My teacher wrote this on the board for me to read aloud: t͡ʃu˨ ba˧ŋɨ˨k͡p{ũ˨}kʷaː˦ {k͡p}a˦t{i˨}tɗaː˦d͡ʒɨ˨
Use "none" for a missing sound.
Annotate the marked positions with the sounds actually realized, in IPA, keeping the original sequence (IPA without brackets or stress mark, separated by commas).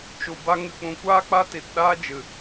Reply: ũ˨, k͡p, i˨